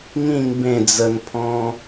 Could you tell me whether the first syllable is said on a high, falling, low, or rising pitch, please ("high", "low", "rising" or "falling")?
falling